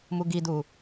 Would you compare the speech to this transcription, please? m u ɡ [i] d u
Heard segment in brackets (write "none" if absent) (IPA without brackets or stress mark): i